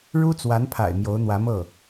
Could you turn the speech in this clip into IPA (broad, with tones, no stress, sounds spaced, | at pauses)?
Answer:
ɻ u˥ t͡s w a˧˥ n pʰ a̰˨˩ ɪ̯ m j o˧˥ ʊ̯ n̪ w ä˧˥ m ɤ˥˩